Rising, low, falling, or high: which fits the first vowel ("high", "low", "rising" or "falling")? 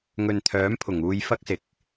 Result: low